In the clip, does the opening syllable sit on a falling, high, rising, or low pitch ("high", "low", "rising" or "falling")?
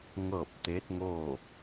falling